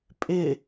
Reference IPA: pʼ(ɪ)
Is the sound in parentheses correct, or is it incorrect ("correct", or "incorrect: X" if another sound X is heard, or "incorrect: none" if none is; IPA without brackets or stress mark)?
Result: correct